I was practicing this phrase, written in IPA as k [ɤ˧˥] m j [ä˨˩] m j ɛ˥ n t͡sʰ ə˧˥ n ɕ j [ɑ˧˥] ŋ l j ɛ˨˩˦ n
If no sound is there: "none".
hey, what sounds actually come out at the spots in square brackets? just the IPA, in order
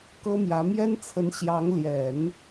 ɤ˥, ä˧˥, ɑ˧˥

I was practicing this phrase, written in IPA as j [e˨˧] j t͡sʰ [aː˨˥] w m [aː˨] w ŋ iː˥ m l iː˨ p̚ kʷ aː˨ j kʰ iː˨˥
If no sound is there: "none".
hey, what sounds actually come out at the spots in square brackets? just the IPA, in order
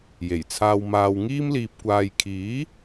e˨˩, aː˧, aː˨

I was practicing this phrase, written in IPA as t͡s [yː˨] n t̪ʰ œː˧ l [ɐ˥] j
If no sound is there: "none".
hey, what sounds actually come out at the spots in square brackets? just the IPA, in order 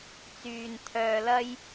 yː˨, ɐ˥

